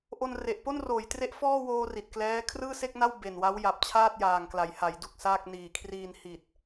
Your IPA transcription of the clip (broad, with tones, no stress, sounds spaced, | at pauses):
ʔ o˧ n r e˨˩ ʔ p o˥˩ n r oː˩˦ j t r e˦˥ ʔ f ɔː˥˩ w oː˧ r i˨˩ t̚ k l ɛː˦˥ kʰ r ɯː˥˩ s e˥˩ k̚ n a˥˩ w b e˨˩ n w a˦˥ w j a˨˩ p̚ t͡ɕʰ aː˥˩ t̚ j aː˨˩ ŋ k l a˩˦ j h a˩˦ j d u˨˩ k̚ s aː˥˩ k̚ n iː˨˩ kʰ r iː˧ n h i˨˩ t̚